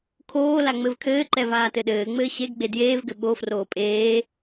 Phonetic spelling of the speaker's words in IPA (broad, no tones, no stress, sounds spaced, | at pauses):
kʰ oː l a ŋ͡m ɘ v kʰ ɘː ǃ ɛ v aː t ɘ ɗ ɘː ŋ͡m ɘː ɕ e ɡ ɡ͡b e d j eː v ɡ ɘ ɓ o f r oː pʼ eː